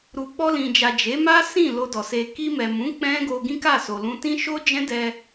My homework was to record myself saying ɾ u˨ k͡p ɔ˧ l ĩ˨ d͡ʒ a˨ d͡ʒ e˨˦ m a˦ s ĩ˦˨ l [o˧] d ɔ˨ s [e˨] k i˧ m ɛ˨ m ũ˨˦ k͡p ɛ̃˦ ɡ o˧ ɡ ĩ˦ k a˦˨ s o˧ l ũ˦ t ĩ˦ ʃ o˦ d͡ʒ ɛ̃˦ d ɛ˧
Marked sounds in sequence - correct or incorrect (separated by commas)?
correct, incorrect